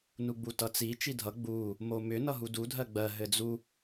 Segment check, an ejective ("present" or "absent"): absent